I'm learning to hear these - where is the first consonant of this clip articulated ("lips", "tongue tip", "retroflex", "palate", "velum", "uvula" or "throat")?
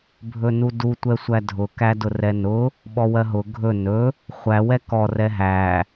lips